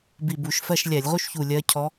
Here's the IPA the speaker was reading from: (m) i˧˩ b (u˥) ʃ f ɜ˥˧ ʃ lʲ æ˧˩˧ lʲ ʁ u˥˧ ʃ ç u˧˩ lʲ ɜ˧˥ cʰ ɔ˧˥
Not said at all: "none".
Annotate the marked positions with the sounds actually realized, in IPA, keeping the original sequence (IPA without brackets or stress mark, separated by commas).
b, u˧˩˧